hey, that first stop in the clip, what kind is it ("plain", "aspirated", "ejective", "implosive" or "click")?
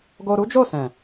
plain